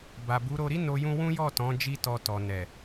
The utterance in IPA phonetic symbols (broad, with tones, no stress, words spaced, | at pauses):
ba˨bu˨˦ ɾo˧ɾi˦no˧jũ˧ wũ˦jɔ˦˨tɔ̃˨˦ d͡ʒi˧tɔ˨ tɔ˨nɛ˨